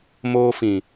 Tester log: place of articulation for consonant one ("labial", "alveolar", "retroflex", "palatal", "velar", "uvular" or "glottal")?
labial